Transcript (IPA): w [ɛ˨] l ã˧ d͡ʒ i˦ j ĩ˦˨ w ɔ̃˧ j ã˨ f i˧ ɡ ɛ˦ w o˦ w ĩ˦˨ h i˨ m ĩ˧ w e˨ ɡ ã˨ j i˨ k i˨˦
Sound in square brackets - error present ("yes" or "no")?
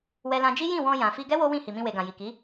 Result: yes